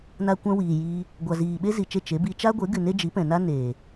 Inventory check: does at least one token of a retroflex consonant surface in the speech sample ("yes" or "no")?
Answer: no